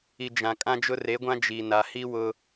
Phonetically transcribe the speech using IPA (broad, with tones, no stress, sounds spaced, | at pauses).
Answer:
i˨ d͡ʒ ã˨ kʼ ã˦ d͡ʒ ʊ˦ r e˨˦ ɡʷ ã˦ d͡ʒ i˨ n a˨ h i˦ w ʊ˦